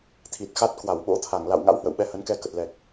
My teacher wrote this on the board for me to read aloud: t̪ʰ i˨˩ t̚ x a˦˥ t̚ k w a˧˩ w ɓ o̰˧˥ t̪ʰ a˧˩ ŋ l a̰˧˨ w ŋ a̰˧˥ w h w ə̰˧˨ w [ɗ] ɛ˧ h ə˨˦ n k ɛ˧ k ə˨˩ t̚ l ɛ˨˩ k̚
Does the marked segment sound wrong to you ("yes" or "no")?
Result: yes